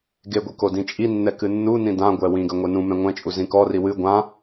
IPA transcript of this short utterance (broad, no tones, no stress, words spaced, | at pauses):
ɡeɡʷi kodĩt͡ʃʼinːɛ kɨnːunĩ dãɡʷɛ wĩɡɐ ŋʷenũmɛ̃ ŋʷɛ̃t͡ʃʼu zĩkɔri wɨ ɡʷã